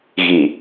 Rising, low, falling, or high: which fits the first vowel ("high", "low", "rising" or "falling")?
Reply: low